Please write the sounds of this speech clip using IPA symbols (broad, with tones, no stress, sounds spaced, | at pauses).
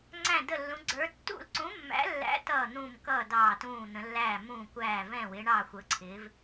ŋ͡ǀ æ̃˥˧ d ə˥˧ lː ũ˧˥ ɡ͡ǀ ə˞˧˥ tː ṵ˥˧ l ǀ ũ˧˥ mː æ̰˧˥ lː æ̰˧˥ t ʌː˥˧ n̪ ũ˥˧ m k ʌː˥˧ d ɑː˥˧ t ũː˥˧ n̪ ə̃˧˥ lː æː˥˧ m ũː˥˧ kʷ æː˥˧ v ɛ̃˥˧ w ɪː˧˥ ɳ ɑː˥˧ xʷ ə˧˥ ǀʰ ɪː˧˥ v